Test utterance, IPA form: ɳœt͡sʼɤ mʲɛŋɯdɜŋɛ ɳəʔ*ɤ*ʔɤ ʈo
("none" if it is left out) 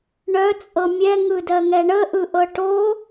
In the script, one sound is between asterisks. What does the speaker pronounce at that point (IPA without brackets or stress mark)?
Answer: ɯ